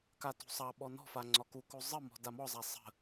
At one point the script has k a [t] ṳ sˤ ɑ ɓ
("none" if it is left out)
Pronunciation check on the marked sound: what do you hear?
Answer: t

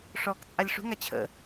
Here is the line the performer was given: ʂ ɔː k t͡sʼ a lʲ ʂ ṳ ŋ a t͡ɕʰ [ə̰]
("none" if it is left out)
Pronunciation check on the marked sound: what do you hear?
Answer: ə̰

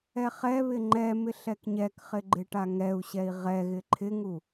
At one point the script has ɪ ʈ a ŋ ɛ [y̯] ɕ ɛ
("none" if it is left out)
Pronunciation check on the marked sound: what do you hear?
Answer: u̯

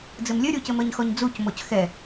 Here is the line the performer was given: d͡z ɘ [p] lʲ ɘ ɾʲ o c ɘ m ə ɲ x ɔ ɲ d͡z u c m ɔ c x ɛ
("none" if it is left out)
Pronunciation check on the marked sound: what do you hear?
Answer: m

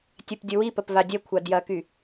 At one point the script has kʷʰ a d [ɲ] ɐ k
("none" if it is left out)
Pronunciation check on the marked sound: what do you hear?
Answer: j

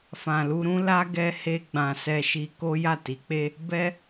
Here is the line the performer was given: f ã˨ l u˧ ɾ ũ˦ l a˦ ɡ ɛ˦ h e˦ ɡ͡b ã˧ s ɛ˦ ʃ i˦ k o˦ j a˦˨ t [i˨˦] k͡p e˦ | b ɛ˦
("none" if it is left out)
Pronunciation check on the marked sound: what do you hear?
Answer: i˨˦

